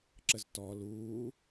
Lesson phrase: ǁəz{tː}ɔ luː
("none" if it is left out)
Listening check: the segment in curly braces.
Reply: t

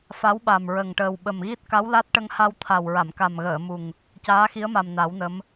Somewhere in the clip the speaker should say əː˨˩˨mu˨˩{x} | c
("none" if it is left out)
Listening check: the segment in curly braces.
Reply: ŋ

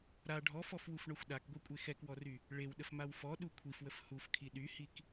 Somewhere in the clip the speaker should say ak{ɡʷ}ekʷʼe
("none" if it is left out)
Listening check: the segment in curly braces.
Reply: ɡʷ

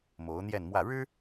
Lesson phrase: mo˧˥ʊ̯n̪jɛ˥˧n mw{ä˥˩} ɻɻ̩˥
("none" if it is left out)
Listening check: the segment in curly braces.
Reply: ä˥˩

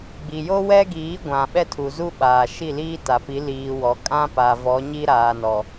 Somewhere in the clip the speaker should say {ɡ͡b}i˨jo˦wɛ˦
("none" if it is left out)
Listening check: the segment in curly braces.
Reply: ɡ͡b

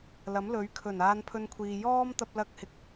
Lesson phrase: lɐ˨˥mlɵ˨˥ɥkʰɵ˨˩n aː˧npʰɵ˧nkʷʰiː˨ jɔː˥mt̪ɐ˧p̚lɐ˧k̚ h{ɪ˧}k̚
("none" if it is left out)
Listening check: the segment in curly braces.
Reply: ɪ˨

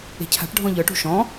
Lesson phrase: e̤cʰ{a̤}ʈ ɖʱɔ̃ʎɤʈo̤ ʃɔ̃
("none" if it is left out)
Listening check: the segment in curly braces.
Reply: a̤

